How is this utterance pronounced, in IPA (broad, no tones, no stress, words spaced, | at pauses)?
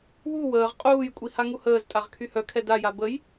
wu wəːʁ qʼuːjkʷʼi haŋuhəːztʼaʁ kʰyhœkʰɛ daja bəj